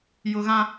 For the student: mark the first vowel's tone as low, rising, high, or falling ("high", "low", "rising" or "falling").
low